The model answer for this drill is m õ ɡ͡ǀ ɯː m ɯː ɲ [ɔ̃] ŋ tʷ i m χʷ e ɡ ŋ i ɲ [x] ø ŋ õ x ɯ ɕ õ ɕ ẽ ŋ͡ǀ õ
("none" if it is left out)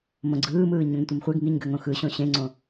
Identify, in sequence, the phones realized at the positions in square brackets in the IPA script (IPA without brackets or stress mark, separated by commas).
õ, ɡ